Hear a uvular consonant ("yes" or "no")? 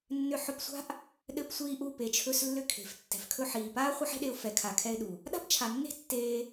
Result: yes